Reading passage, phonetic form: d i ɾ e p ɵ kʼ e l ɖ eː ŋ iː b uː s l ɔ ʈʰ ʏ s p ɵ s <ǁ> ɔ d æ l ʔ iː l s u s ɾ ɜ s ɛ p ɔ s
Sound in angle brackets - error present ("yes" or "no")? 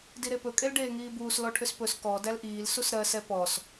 yes